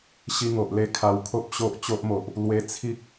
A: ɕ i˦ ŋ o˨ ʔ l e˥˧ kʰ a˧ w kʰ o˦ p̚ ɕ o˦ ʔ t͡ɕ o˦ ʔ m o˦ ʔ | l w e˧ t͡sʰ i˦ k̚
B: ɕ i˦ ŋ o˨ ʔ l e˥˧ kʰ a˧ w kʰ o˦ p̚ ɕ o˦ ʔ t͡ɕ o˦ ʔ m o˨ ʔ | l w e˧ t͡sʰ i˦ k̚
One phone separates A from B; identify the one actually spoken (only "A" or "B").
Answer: B